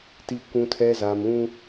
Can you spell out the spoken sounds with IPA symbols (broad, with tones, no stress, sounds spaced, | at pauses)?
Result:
t i˨ kʷ ũ˨ tʰ ɛ˨ z a˨ m ũ˦